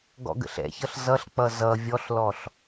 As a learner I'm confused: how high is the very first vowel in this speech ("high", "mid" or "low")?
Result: mid